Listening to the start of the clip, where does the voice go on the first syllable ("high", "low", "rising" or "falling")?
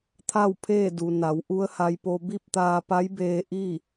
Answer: falling